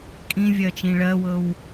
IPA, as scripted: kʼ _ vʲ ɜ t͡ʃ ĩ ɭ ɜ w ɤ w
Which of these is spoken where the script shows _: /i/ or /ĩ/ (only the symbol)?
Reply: ĩ